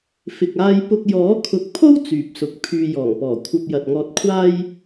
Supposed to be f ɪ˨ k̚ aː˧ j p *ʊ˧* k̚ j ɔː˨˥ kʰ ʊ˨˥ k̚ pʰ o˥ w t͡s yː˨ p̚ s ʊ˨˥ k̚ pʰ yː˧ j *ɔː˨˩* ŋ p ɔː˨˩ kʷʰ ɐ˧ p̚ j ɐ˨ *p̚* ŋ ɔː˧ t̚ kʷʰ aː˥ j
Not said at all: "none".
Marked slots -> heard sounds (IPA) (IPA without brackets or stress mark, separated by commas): ʊ˧, ɔː˨˩, t̚